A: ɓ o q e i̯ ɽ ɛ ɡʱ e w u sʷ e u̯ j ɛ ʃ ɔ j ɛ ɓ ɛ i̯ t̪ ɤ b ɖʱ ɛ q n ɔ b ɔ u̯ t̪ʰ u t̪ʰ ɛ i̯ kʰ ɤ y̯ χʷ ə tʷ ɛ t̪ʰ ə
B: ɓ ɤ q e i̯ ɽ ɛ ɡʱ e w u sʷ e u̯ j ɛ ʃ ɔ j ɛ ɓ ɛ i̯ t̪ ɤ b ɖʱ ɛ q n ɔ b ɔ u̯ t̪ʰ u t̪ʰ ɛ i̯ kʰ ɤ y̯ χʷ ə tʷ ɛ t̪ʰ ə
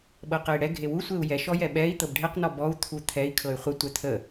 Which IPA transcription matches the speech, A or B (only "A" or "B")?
B